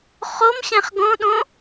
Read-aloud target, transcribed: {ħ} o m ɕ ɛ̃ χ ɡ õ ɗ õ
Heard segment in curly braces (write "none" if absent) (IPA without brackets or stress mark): χ